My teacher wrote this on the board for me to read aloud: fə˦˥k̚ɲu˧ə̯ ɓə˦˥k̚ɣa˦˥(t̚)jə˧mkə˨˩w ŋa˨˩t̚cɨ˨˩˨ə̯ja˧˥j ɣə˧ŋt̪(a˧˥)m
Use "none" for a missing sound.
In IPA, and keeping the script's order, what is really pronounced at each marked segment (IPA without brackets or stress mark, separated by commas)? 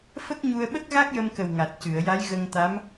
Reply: k̚, a˧˥